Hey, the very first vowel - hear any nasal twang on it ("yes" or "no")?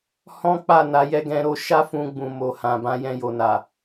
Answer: yes